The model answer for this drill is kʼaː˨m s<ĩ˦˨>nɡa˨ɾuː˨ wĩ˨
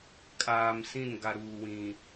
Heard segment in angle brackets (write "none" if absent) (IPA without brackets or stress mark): ĩ˦˨